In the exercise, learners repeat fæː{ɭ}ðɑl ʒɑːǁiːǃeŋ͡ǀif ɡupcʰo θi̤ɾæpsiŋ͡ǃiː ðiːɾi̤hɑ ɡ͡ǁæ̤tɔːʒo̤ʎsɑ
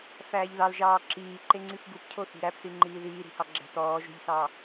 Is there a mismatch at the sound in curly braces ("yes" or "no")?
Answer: yes